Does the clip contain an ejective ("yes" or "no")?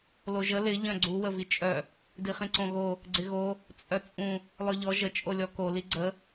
yes